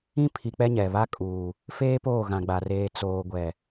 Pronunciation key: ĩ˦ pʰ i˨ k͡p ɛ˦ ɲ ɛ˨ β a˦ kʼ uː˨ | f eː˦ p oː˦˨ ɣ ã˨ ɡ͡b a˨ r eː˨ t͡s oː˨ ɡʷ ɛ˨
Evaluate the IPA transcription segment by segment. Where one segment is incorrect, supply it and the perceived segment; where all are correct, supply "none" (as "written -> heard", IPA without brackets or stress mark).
none